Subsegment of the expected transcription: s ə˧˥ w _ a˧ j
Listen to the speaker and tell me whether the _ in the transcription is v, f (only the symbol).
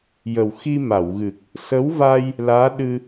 v